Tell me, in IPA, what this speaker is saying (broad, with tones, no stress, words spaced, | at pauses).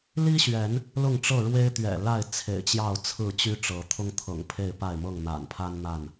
li˦ɕɥɛ˨˦n | lʊ˥˨ŋʈ͡ʂɤ˥˨ɻwe˦ɪ̯ t̪ɥɛ̰˨˩la˥˨ɪ̯ t͡sʰḛ˨˩ɪ̯t͡ɕjɑ˥˨ʊ̯t͡sʰɹ̩˥˨ t͡ɕy˦ʈ͡ʂɤ˨˦ t̪ʰʊ˦ŋt̪ʰɤ̰˨˩ŋ pʰe˥˨ɪ̯pa˥˨ɪ̯mɤ˥˨ŋ n̪a̰˨˩npʰa˦n n̪a˥˨n